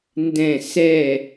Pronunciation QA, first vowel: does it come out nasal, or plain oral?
nasal